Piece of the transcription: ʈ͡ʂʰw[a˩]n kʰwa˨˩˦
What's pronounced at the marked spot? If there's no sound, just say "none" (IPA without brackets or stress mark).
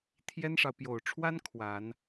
a˥